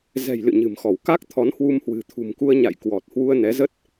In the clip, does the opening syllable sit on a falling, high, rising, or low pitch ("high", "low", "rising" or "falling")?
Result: low